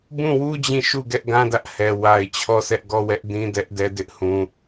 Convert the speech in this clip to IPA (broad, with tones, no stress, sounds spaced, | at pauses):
b ũ˦˨ w u˦ d͡ʑ ĩ˦˨ ʃ u˦˨ ɡ ɛ˦ ʔ ɡ ã˦ d ä˦ ʔ h ɛ˨ w a˨ ɪ̯ t͡ɕʰ ɔ˦˨ s ɛ˦ ʔ ɡ ɔ˦˨ w ɛ˦ ʔ d ĩ˦ d ɛ˦ ʔ d ɛ˦ d ɪ˦ ʔ h ũ˨